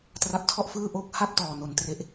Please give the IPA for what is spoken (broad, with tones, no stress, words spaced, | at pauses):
tra˦˥p̚tʰɔ˥˩ʔfɯː˥˩ ʔo˦˥k̚ha˥˩p̚tɔː˨˩ no˨˩ntre˦˥ʔ